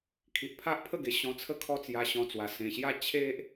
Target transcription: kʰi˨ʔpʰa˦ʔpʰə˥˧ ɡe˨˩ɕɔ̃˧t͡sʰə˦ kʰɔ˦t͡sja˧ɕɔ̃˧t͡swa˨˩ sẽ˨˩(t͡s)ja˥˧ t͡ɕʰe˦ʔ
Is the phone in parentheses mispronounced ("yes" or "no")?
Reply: yes